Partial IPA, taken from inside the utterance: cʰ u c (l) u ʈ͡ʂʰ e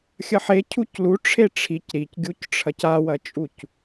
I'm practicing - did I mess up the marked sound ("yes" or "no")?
no